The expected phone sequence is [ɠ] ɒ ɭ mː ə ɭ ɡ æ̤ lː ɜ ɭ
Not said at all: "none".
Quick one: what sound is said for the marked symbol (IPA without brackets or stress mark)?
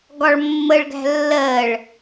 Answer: ɡ